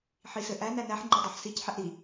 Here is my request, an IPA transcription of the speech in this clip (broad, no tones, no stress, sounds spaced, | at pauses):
ħ i s ɘ ʔ æ n æ n æ ħ ŋ͡ǃ ɤ dˤ æ ħ s i c ħ ɛ ʔ ɾ i